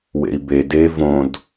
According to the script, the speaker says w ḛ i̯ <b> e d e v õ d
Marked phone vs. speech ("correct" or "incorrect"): correct